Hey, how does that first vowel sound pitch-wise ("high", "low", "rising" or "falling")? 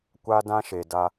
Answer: high